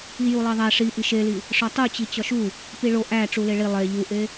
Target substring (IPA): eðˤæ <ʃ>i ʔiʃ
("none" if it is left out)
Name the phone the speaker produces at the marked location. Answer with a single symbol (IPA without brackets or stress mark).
ʂ